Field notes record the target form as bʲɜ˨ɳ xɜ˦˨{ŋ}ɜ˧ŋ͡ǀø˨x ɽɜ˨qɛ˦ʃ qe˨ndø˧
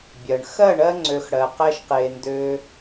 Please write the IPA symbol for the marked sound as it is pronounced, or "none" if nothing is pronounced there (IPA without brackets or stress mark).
ɳ